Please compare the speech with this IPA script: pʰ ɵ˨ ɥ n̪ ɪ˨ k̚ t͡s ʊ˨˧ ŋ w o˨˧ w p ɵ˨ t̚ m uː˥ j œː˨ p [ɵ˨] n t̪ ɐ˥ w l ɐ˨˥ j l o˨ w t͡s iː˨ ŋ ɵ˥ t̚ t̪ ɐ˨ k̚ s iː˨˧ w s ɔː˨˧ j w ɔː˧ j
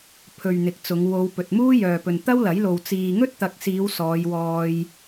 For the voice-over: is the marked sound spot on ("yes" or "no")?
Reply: yes